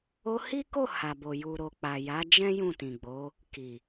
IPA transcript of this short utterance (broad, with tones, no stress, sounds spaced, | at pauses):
o˧ h i˦ k o˦˨ h a˨ b o˨ j u˨ ɾ o˨ k͡p a˨ j a˨˦ d͡ʒ ɛ̃˦ j ũ˦˨ t ĩ˨ ɡ͡b o˨˦ | k i˨